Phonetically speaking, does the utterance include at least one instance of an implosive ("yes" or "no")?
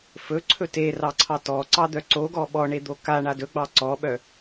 yes